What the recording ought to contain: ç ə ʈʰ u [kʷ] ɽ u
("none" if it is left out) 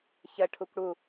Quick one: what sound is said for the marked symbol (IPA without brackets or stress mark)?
kʷ